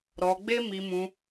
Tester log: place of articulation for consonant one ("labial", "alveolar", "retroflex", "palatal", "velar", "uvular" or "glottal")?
alveolar